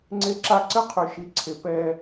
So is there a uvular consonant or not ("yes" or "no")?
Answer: yes